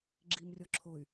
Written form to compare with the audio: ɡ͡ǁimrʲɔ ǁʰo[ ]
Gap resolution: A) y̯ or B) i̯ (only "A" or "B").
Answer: A